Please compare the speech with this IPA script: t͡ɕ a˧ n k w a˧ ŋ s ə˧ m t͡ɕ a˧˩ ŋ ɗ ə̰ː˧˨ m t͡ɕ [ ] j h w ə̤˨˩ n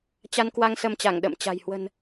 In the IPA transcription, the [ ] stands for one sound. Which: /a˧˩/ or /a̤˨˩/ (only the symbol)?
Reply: a̤˨˩